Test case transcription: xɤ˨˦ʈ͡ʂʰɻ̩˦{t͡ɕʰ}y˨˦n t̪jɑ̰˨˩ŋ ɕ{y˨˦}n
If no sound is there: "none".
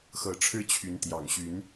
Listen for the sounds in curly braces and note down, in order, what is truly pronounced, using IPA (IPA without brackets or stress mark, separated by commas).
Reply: t͡ɕʰ, y˨˦